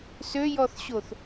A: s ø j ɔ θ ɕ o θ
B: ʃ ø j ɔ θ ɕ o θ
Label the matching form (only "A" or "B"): A